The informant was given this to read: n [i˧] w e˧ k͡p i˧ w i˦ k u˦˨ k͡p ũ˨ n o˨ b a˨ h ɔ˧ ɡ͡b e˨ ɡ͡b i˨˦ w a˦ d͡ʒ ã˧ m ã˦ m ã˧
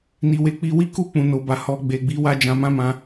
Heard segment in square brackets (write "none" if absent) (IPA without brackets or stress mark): i˧